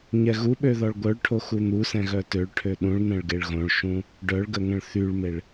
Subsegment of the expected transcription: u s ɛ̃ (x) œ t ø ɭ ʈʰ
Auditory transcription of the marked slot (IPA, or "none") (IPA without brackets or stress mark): ɣ